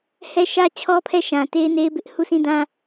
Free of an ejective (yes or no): yes